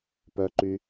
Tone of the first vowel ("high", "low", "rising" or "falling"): low